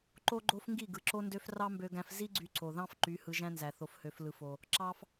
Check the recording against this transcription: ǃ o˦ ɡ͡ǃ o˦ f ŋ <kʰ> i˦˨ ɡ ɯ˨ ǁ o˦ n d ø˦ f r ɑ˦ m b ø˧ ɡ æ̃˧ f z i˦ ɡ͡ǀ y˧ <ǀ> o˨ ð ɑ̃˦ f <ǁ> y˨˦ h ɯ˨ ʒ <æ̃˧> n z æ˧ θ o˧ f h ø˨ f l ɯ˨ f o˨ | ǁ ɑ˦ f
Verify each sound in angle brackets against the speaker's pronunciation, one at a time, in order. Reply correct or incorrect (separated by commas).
incorrect, correct, incorrect, correct